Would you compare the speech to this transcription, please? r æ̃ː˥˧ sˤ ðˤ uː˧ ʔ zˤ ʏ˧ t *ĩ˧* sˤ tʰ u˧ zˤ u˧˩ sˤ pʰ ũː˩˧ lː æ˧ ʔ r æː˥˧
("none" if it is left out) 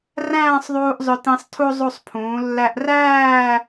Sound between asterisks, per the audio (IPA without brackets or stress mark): ĩ˧